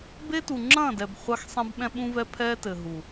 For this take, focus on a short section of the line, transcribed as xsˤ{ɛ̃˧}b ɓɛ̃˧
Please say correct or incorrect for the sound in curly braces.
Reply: correct